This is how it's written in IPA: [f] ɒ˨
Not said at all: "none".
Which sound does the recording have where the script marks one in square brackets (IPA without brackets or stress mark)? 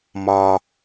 m